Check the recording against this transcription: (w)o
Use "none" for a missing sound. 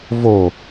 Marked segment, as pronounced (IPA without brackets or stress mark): v